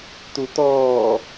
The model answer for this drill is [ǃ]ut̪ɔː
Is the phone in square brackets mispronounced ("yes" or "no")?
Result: yes